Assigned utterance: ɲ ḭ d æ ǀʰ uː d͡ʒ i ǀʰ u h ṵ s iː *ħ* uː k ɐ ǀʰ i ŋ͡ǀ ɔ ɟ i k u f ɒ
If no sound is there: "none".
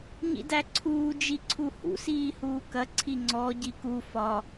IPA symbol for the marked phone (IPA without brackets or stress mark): h